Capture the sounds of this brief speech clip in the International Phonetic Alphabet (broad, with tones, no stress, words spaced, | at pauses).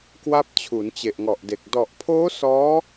kwa˦˥p̚ t͡ɕʰu˩˦nt͡ɕe˨˩ʔŋɔ˨˩ʔde˨˩k̚ dɔ˨˩ʔpʰoː˦˥ sɔː˦˥